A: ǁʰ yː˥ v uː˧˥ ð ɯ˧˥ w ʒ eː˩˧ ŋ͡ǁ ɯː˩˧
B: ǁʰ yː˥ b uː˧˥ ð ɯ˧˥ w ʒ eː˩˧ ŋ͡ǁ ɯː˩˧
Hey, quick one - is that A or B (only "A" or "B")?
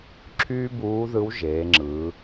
B